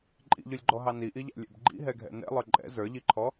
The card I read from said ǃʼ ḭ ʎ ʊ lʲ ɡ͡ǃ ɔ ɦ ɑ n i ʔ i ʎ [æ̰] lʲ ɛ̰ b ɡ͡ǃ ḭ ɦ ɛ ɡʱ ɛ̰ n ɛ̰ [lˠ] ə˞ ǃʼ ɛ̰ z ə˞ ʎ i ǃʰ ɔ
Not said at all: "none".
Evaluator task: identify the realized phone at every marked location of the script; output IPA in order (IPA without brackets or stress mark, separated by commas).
æ̰, lˠ